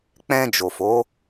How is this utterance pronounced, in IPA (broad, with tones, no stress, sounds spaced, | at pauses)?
k͡p ɛ̃˧ d͡ʒ o˨ f o˨˦